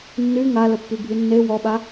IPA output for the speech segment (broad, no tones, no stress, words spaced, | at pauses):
nːy ŋaləpːybʱy nːe wɔɓa